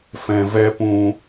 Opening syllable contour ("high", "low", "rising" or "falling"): low